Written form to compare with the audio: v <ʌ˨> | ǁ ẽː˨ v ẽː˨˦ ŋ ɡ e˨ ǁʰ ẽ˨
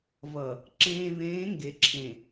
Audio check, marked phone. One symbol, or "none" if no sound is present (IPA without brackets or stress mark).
ʌ˨